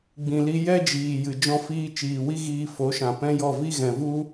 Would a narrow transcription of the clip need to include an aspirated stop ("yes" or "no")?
no